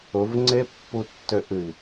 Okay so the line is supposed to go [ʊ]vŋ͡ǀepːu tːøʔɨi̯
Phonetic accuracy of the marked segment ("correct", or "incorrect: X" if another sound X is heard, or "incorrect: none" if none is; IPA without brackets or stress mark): correct